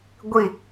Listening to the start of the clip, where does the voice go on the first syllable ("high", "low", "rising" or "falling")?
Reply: falling